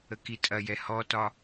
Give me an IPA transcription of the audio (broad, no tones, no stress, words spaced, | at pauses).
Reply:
əkitʼɐjɛ hɔtɒ